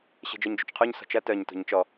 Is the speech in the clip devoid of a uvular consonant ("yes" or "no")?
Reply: no